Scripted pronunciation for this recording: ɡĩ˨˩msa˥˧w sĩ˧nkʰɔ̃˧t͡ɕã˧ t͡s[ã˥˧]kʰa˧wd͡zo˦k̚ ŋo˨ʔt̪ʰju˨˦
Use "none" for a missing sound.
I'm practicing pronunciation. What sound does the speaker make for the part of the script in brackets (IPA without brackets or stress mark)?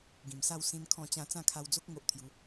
ã˥˧